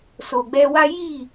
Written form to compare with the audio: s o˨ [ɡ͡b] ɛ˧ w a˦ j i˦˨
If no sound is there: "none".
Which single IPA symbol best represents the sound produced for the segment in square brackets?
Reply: ɡ͡b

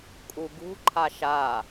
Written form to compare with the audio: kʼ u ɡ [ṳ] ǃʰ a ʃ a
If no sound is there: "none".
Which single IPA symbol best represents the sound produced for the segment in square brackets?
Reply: ṳ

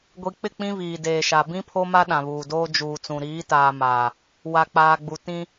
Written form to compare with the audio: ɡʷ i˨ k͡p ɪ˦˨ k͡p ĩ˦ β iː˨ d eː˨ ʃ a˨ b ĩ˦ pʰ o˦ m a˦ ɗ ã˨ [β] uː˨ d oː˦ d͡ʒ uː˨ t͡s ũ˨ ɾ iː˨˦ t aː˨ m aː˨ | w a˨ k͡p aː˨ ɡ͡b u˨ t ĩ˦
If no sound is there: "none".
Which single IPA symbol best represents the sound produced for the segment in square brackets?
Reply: β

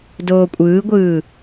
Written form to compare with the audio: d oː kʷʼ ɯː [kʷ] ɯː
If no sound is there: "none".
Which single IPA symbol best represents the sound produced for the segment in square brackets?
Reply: ɡʷ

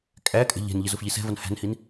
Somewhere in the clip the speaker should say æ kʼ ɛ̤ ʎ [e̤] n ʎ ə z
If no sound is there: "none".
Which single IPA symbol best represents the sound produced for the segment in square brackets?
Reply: ɛ̤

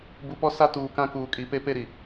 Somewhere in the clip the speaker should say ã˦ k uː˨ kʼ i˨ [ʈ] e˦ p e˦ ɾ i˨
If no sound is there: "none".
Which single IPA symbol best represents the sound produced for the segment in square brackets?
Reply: p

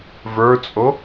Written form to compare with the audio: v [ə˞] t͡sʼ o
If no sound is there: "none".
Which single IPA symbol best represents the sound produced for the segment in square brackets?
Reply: ə˞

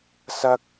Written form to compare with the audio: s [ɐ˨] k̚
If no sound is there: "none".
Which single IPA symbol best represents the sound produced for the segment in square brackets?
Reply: ɐ˥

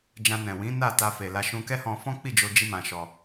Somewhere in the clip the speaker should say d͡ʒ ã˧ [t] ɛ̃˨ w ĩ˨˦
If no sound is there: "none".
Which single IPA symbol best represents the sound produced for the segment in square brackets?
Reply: n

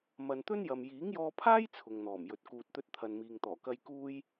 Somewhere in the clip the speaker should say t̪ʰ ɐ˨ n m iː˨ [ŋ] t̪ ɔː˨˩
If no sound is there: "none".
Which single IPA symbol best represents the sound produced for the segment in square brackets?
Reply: ŋ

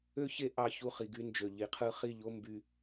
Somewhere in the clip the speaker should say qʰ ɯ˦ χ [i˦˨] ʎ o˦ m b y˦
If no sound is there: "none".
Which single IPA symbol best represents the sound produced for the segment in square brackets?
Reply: i˦˨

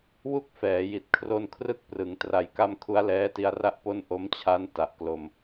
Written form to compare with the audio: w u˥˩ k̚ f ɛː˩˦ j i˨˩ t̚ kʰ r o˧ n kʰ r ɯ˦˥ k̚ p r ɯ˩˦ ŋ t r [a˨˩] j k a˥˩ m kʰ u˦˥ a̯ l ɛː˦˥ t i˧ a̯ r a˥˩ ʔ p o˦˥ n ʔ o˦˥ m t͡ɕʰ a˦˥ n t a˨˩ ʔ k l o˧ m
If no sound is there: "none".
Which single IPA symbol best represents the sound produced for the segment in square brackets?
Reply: a˧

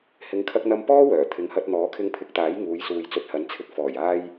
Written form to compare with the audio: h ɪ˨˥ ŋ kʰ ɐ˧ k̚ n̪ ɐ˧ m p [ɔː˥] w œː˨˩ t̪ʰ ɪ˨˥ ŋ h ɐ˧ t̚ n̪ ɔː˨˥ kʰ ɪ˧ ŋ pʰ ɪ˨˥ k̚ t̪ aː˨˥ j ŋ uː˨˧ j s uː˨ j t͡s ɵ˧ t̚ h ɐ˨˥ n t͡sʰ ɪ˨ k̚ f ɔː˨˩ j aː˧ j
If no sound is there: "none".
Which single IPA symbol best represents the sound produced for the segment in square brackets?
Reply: ɔː˥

